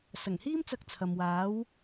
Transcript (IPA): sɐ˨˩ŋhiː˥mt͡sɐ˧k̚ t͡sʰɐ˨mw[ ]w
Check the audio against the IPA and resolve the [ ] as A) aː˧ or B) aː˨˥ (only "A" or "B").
B